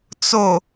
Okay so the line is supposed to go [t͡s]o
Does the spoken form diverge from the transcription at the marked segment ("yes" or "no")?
no